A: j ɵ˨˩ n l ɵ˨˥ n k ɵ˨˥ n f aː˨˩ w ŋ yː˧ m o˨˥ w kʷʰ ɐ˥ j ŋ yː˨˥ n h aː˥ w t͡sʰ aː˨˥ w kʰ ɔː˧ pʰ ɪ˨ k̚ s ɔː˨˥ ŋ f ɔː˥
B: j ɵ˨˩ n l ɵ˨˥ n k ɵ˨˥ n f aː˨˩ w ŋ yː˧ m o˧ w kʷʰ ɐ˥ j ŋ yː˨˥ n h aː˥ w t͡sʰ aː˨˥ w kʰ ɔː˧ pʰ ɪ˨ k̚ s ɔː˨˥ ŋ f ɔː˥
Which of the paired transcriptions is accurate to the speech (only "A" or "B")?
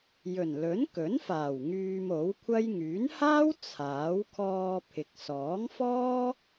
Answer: A